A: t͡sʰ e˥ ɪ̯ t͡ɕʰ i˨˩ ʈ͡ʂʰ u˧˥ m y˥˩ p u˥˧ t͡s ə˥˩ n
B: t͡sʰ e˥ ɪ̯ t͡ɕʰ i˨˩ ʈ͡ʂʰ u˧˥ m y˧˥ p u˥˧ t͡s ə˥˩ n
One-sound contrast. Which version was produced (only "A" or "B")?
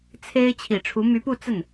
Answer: B